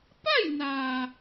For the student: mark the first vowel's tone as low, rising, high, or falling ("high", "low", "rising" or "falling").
falling